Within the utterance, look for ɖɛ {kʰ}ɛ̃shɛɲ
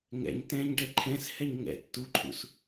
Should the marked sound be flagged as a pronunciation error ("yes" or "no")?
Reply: yes